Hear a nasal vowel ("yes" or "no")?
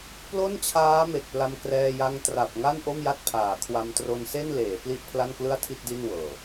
no